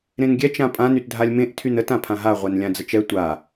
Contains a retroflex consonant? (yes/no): no